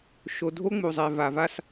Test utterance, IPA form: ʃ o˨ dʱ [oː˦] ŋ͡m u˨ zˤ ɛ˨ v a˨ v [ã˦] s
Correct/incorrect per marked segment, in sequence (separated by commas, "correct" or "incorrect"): incorrect, incorrect